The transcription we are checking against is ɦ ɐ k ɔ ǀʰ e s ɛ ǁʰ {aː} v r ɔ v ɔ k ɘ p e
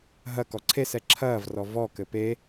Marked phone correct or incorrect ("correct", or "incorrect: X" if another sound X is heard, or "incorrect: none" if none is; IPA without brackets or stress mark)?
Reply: incorrect: ɐː